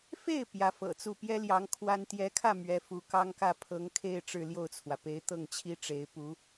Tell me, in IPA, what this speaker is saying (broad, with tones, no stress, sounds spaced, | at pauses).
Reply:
f e˥˩ ɪ̯ p j ä˧˥ f ɤ̰˨˩ t͡s u˥˩ p j ɛ˥ l j ɑ˧˥ ŋ kʰ w a˥ n t̪ j ɛ˧˥ kʰ ä˥˩ m ɥ ɛ˧˥ f u˧˥ k ɑ˥ ŋ k ä˥˩ pʰ ɤ˧˥ ŋ kʰ e˥˧ ɪ̯ ʈ͡ʂ ɻ̩˥˧ l j o˥˩ ʊ̯ t͡sʰ w ä˩ p e˧˥ ɪ̯ t̪ ɤ˥˩ ŋ t͡ɕʰ i˥ ʈ͡ʂ e˧˥ ɪ̯ p u˧˥